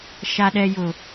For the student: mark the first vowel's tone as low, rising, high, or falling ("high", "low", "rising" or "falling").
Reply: low